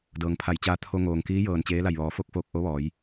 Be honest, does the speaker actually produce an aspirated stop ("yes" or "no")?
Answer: yes